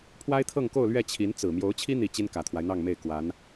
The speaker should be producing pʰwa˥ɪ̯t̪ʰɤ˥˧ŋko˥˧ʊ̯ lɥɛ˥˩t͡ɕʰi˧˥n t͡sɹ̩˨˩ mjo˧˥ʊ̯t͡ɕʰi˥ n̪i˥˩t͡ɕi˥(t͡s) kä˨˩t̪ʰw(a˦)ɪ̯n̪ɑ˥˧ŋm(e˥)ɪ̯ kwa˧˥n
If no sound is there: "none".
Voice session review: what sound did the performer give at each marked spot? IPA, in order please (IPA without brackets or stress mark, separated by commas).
n, a˦, e˥˩